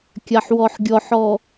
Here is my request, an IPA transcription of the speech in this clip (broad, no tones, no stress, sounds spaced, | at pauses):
kʲ a ħ w ɔ ħ ɡʲ ɔ ħ ɔ